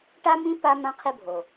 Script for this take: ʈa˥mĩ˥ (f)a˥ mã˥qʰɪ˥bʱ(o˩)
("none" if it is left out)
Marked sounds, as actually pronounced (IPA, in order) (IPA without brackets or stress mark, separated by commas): p, o˩